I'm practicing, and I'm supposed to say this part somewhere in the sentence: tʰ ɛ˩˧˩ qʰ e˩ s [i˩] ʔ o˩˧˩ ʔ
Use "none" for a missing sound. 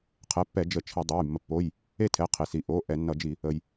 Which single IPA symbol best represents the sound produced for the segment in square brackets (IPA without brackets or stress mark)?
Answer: i˩